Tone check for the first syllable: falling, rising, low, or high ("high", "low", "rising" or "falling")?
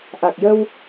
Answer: low